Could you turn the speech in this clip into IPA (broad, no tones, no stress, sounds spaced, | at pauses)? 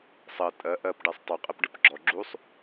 sˤ ɜ tʼ ɜ ʔ ɜ p ɖ ɛ sˤ tˤ u qʼ e p ɖ ɨ p ɡ͡ǁ ɔ ɡ͡ǁ u sˤ